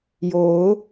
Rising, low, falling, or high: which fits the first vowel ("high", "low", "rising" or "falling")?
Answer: rising